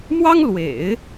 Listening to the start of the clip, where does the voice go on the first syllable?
high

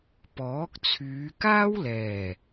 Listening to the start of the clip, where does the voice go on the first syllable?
rising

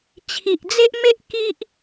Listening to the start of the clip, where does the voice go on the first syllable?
low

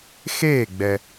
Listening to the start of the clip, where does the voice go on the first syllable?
falling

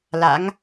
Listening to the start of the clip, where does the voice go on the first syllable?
rising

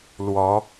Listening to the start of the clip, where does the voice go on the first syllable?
rising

